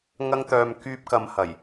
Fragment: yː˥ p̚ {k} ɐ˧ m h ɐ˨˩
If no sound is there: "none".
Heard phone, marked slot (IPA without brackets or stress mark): k